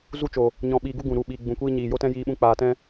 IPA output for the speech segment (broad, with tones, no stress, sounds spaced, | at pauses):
z u˧ t͡ʃ o˨ | ɲ ɔ̃˨ ɓ iː˨ ɡ u˧ ɡ ũ˨ ɾ u˨ ɓ iː˨ ɡ͡b ũ˨ kʷ iː˦ ɲ iː˨ j o˦ t ɛ̃˦ j iː˧ ɓ ũ˧ k͡p aː˧ t ɛ̃˦